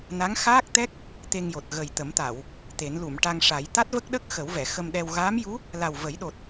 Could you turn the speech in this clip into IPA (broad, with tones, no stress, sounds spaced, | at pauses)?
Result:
n a˧˥ ŋ x aː˦˥ k̚ t̪ ɛ˦˥ k̚ | t̪ e˧ ŋ j o˨˩ t̚ ɣ ə˨˩ j t̪ ə˨˩˦ m t̪ a˨˩˨ w | t̪ e˨˩˦ n l u˨˩˨ m ʈ a˧ ŋ ʂ a˨˩˦ j t̪ a˦˥ t̚ v ə˦˥ k̚ ɗ ə˦˥ k̚ x ə˨˩˦ w v ɛ˨˩˨ x ə˧ m ɗ ɛ˧ w ɣ aː˧˥ m j u˧˥ | l a˨˩ w v ə˨˩˦ j ɗ o˨˩ t̚